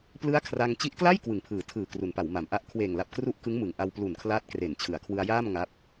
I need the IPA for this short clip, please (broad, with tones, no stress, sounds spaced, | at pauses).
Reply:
p l ɯ˦˥ a̯ kʰ r a˧ ŋ t͡ɕ i˦˥ ʔ k l a˥˩ j k w ɯ˨˩ ŋ pʰ ɯː˩˦ tʰ ɯː˨˩ k r u˩˦ n p a˩˦ w m a˩˦ m ʔ a˦˥ ʔ kʰ w eː˨˩ ŋ l a˨˩ p̚ k r u˥˩ ʔ k ɯ˦˥ ŋ m ɯ˩˦ ŋ ʔ a˧ w p l u˨˩ n kʰ l aː˦˥ t̚ k r e˨˩ n t͡ɕʰ ɯ˩˦ a̯ kʰ w ɯ˧ a̯ j aː˥˩ m ŋ a˦˥ p̚